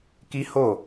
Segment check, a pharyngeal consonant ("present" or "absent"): absent